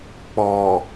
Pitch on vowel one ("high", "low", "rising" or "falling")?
low